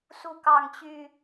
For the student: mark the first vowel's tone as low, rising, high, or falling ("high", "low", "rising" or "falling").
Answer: high